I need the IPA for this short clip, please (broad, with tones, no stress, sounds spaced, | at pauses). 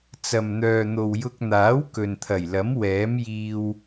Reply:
t͡s ɐ˨ m n̪ œː˨ n̪ o˨ w j ʊ˧ k̚ n̪ aː˨˥ w k ɵ˨ n t̪ʰ ɐ˨˩ j l ɐ˨˥ m w ɛː˨˥ m j iː˧ w